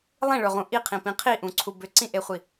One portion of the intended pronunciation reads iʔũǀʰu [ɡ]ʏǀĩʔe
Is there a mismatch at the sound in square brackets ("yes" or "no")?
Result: yes